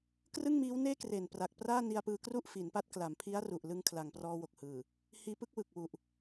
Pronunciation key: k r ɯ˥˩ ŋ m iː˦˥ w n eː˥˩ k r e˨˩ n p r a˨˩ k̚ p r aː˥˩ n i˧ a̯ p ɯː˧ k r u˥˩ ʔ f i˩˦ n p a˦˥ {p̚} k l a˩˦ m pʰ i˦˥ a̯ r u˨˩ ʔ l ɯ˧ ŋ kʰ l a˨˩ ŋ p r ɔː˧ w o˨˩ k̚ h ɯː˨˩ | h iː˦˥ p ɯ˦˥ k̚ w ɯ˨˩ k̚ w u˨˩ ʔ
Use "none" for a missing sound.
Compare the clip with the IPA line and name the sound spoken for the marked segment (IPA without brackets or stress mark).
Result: t̚